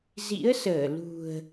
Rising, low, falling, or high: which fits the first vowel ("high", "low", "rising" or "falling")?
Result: rising